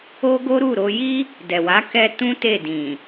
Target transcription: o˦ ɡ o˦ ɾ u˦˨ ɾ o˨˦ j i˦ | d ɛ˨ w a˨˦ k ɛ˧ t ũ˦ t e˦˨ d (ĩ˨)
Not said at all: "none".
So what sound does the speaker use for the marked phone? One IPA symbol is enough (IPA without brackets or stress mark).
ĩ˨